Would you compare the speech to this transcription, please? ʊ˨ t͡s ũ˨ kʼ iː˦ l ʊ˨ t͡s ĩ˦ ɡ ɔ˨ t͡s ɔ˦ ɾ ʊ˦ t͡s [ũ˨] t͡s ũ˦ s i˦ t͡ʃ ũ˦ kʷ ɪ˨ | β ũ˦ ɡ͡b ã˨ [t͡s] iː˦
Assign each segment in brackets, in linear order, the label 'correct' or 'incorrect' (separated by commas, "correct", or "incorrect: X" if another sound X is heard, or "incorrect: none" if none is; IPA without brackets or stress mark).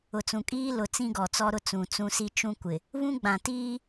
correct, incorrect: t